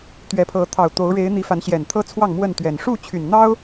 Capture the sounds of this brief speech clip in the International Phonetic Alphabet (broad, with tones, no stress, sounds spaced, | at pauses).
t̪ ɥ ɛ˨˦ pʰ ɤ˨˦ t̪ʰ ɑ˨˩ ʊ̯ t̪ o˨˦ ʊ̯ ɻ e˨˦ ɪ̯ n̪ i˨˦ f a˨˦ n ɕ j ɛ˨˩ n t̪ʰ ɤ˦ t͡sʰ w ɑ˥˨ ŋ m w ə˥˨ n t̪ ɥ ɛ˨˩ n ʂ u˥˨ t͡ɕʰ y˨˩ n n̪ ɑ˦ ʊ̯